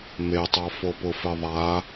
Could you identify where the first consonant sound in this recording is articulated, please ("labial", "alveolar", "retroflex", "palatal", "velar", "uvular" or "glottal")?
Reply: labial